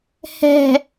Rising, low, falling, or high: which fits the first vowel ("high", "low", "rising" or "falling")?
low